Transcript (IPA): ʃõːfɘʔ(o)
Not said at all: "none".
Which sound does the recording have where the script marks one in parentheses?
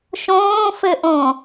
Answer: õ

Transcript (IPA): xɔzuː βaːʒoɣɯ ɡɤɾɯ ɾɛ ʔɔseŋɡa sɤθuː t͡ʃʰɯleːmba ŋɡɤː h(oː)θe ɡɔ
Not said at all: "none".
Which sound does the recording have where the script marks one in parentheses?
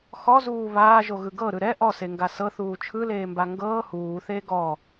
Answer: uː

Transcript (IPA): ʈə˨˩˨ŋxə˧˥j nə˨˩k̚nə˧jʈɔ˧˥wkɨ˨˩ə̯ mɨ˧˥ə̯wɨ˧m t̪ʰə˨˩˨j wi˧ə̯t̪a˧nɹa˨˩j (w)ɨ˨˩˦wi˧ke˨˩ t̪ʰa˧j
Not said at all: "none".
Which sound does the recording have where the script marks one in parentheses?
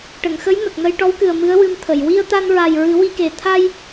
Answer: ɹ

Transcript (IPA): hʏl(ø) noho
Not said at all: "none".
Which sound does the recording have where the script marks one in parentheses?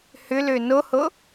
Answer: ø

